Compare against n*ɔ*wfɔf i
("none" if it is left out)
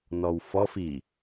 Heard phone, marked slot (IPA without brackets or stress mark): ɔ